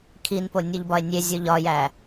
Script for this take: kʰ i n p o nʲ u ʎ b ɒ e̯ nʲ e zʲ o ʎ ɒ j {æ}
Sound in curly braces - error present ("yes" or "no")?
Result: no